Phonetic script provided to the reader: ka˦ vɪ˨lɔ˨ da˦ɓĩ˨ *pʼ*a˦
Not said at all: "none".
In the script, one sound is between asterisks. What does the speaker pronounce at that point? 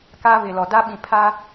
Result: pʰ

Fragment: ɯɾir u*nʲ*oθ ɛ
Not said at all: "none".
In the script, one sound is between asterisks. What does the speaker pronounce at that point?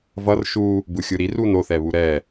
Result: n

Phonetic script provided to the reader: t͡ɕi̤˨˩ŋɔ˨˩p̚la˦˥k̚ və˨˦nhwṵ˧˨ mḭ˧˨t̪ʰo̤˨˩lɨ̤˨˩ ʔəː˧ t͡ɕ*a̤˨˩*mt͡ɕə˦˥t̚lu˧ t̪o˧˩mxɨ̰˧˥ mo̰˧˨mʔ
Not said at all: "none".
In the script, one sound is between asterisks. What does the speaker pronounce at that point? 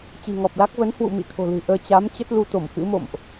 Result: a˨˦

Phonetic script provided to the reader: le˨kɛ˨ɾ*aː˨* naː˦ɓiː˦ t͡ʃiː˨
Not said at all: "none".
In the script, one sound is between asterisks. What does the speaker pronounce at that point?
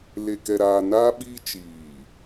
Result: aː˨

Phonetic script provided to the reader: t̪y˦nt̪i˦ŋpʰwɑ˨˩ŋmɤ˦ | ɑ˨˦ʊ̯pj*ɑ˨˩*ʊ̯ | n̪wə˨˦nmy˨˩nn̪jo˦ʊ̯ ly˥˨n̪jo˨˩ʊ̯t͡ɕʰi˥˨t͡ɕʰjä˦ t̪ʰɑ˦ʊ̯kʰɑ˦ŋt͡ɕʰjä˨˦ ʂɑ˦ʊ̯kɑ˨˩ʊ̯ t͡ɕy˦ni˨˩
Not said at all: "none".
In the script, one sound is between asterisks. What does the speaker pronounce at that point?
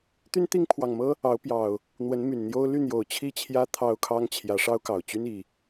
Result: ɑ˨˩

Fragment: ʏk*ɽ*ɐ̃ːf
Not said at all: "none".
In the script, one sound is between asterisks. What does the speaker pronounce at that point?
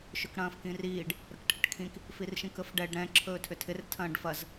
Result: ɽ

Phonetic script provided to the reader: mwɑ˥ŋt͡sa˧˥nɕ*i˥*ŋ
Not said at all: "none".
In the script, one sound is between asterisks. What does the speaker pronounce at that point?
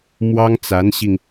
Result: i˧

